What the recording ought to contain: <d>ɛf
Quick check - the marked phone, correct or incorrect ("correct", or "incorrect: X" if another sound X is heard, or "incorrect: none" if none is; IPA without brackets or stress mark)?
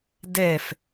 correct